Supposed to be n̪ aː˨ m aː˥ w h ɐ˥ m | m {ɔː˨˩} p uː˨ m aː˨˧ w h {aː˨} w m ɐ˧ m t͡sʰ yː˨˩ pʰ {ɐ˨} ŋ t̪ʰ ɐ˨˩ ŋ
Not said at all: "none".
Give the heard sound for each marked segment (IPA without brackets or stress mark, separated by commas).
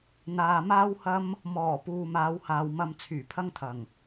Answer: ɔː˨˩, aː˨, ɐ˥